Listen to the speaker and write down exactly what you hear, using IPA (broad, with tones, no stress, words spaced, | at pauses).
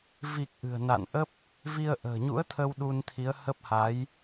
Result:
vi˨˩k̚ ʔɨ̤˨˩ə̯na̰˧˨n ʔə˦˥p̚ | vi˧ə̯ʔə̤ː˨˩ɲṵ˧˥ə̯t̪ʰə˧w ɗu˧nt̪ʰi˨˦ə̯hə˦˥p̚ ha˨˦j